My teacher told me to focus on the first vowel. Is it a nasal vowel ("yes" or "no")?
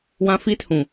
yes